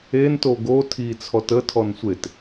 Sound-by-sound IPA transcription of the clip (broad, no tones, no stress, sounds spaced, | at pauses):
e n t o ɡ o tʰ i t͡sʰ ɔ t ə tʰ ɔ n sʷ e t